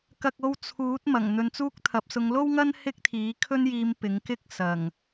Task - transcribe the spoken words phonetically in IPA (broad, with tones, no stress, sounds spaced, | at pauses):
k ɐ˧ k̚ o˧ w t͡sʰ uː˨˥ t̚ m ɐ˨˩ ŋ n̪ ɵ˧ n t͡s uː˥ k̚ t̪ʰ ɐ˨˥ p̚ s ʊ˨˧ ŋ l o˥ w ŋ ɐ˥ n h ɪ˥ k̚ t̪ʰ iː˨˥ kʰ ɵ˥ n j iː˧ m p ɪ˨˥ ŋ k ɪ˥ k̚ s ɐ˨˩ ŋ